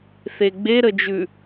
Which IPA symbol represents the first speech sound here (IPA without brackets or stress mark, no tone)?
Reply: θ